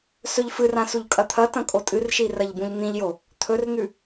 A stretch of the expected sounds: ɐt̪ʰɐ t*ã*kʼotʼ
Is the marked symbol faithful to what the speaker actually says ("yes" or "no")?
no